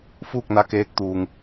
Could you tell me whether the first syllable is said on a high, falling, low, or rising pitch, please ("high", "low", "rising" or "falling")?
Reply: falling